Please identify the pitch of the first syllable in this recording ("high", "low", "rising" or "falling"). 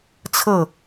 falling